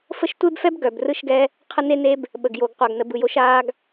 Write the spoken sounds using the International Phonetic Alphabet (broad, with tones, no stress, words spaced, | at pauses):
fə˦ʃtʷe˦bfɛ˦b ɡœ˨brɯ˦ʃɡɛ˦ | qʰə˦ne˦ne˦b | ɓə˨ɡjo˨ɡ qʷa˨ɡnə˨bɯ˨ jo˦ʃ aː˦ɡ